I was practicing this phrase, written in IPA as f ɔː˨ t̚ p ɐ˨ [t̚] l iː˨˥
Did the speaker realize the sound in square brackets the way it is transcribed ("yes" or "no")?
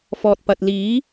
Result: yes